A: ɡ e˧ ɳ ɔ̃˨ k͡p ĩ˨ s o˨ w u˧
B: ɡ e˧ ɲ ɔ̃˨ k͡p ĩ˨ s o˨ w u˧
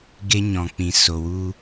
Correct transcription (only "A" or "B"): B